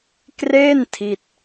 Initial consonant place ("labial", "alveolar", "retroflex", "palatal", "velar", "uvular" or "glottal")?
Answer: velar